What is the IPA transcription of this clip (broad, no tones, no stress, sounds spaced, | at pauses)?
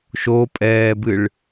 ʃ o pʼ ɛː b ɨ ɭ